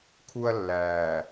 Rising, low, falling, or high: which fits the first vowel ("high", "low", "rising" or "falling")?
high